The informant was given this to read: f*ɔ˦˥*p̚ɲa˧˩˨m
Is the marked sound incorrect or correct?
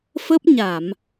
incorrect